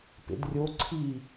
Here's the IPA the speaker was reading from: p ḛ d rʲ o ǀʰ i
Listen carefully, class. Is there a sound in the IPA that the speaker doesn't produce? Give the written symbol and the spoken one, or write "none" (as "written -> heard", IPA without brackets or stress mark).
none